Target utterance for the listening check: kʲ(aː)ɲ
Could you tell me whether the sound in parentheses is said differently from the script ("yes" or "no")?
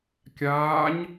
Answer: no